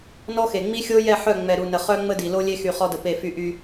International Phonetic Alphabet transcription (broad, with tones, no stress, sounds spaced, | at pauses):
n ɔ˦ x e˨ ŋ͡m i˦ xʲ o˦ j ɛ˦˨ ħ œ˦˨ ŋ͡m ɛ˨ ɾ u˨ n ə˨ χ œ˦ ŋ͡m ə˦ d i˨ l o˦ lʲ e˦ x y˨ χ ɔ˦ d ə˨ p e˦˨ f y˦ ʔ y˦